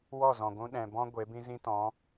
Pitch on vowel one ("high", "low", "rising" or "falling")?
falling